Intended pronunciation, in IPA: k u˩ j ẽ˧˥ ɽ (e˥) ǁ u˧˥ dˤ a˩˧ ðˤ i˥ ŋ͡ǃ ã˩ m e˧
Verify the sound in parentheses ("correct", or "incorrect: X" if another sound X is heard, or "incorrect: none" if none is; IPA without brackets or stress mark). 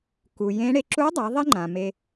incorrect: e˧